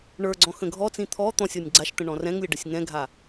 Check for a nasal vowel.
present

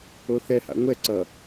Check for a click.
present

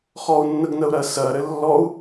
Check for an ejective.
absent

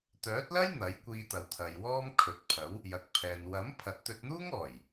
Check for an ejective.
absent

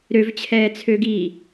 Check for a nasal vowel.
absent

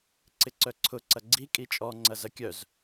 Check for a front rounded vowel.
present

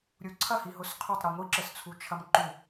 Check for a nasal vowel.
absent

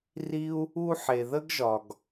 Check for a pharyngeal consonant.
present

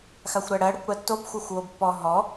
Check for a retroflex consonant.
present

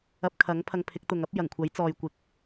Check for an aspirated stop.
present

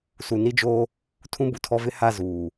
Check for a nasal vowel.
present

